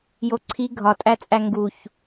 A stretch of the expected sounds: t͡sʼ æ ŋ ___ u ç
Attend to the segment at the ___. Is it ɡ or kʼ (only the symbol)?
ɡ